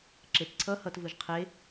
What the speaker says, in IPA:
ǁ e t ǀʰ ʌ h ʌ t v ɯ ʒ qʰ e

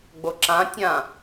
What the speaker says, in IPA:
ɡ͡b o ǁ ã tʲ ã

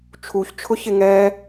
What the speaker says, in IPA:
t͡ʃʰ u ç t͡ʃʰ ʊ ç ɪ ŋ ɛ

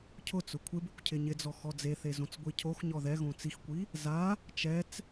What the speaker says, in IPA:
cʰ ʊ t͡s ʊ kʷʰ ɪ b ɪ kʷ cʰ ɪ ɲ ɪ d͡z ɔ x ɔ d͡z e θ e z õ t͡s ɡʷ i cʰ o x ɲ ɔ ð ɛ ɣ õ t͡s i x kʷ i | z a | t͡ʃ ɛ t͡s

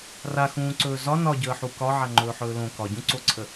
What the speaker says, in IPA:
r a x ũː ǀ ɵː z ɒ n ɒ ɟ əː ħ u k ɒ ʕ a ŋ͡ǃ ɵː ħ ɵː l õ k ɒ ɟ ũ ǀ o ǀʰ ə

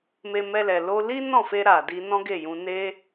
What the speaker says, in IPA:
m e˧ m ɛ˧ l ɛ˨ l o˧ l i˦ n ɔ̃˦˨ f e˧ ɾ a˨ d i˧ n ɔ̃˦ ɡ e˦˨ j ũ˧ n e˦

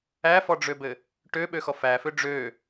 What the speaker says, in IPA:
æ f ɔ ɖ͡ʐ ø b ɘ | ʈ ø ɓ ø x ɔ f æ f ø ɖ͡ʐ ø

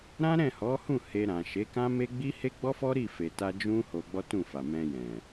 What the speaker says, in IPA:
ɾ ã˦ ɾ ɛ̃˦˨ h ɔ˨˦ h ũ˦˨ h e˧ ɾ ã˨ ʃ e˨˦ k ã˦ m e˦ ɡ͡b i˦ h e˦ ɡ͡b ɔ˦ f ɔ˦ ɾ i˦˨ f e˨ t a˧ d͡ʒ ũ˦ h o˧ ɡ͡b ɔ˦ t ũ˦˨ f a˨ m ɛ̃˧ j ɛ̃˨

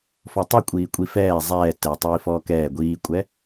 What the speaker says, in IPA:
f ɔ tˤ u kʷʼ iː kʷʼ i f ɛː zˤ ɛː t ɛ tˤ iː f ɔː k ɛː ɡʷ iː kʷʼ ɛ

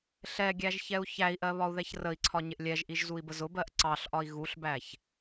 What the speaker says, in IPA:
ɬ ɛ ɡʲ æ ʒ ç ɛ u̯ ç æ i̯ ʔ ɜ β ɒ u̯ ð ɛ ç r ə i̯ ǀʰ ɒ ɲ ɪ ʔ lʲ ɛ ʒ ʔ i ʒ z u i̯ b ə z ʊ b ɜ ʔ ǀ ɑ ɬ ʔ ɒ i̯ ɣ u ɬ b æ ç

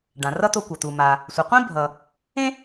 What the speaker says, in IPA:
ɖ ã˩ r ʌ˥ t̪ o˧ kʷ ʌ˩ t̪ u˩ m a˩ | sʷ a˩ qʷ ĩ˥ bʱ ʌ˩ | ẽ˥

